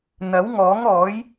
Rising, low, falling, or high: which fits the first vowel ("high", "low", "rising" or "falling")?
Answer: rising